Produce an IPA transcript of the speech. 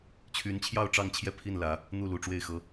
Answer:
t͡ɕʰy˧˥nt͡ɕʰjɑ˥˧ʊ̯ ʈ͡ʂɑ˥˧ŋt͡ɕʰjɛ˥˧ pʰi˥˩nlä˨˩˦ | n̪u˥˩ lu˨˩ ʈ͡ʂwe˥˩ɪ̯xɤ˧˥

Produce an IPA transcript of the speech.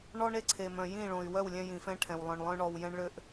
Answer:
ɳɔ˦ɳe˧ǀʰe˨mœ̃˨ jĩ˦˨ɭõ˨y̯ wœ˦˨wlʲɛ̃˧ jĩ˨fɛ̃˧ʈʰɛ̃˨w lˠœ̃˨ɳ lˠœ̃˧ɳɔ˨w jɛ̃˧ɳɭø˧ʔ

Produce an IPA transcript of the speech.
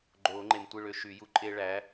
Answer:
ɡ͡ǃoː˨˩˦ŋ͡ǃe˨mtʷɯ˥˩ɭø˦ ʃy˨˩˦ju˨˥ ǃʼe˦ɭæ˨˥

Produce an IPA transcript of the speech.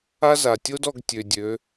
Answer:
a˥za˩tʲo˥dɔ˩˧ɡ tʲø˩dʲø˩˧

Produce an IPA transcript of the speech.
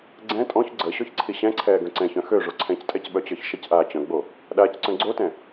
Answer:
ɡ͡ǀɛ̃ tʼɔ̃ç ɡ͡ǀə ɕɔçǀʰiɕɛ̃ǀʰɛː ɡœ̃ǀɛ̃çœ̃ xø ʐoǀʰɛ̃ctʼɛc ɓœt͡ɕə˞çʃəcʔaː t͡ɕœ̃ɡ͡bo | ɗaːcǀœ̃ɡ͡ǀotɛ̃

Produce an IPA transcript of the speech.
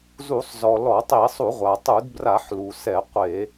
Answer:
zu˧˩˧sˤzɔ˩ lɔ˧˩˧tˤi˧˩˧sˤu˧˩˧ʁʷa˩ tˤu˧˩˧dbra˧˩˧ħ lu˩sɛ˧˩˧ qʷe˧˩˧

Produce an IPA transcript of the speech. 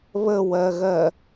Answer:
βəwɜɣɜ

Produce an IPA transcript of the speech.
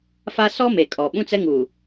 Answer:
fa˦ sɔ˦ me˨kʼɔ˨ ɓũ˦t͡sɛ˦ŋuː˨

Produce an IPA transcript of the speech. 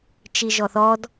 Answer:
t͡ʃiʒɔθɔd

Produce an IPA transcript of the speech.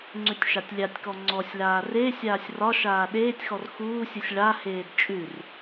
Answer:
ŋ͡ǀʉtʲʃatʲlʲatʲkɔ ŋ͡ǀɔsʲlaː re sʲaːsʲrɒʃaː ɗeːtʲxɔr xuːsʲusʲ ɭaheːd t͡ʃʼʉr

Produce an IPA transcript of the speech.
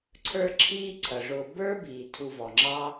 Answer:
ǀʰə˞˦ǁʰiː˦ ǀʰʌ˩ʐʊː˨ bə˞˥biː˩ tʰu˨vɔ˩ŋ͡ǁɑ˦

